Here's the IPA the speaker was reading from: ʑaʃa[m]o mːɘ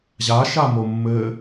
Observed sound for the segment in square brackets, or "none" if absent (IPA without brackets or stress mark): m